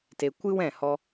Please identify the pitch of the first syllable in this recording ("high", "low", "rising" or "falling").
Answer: low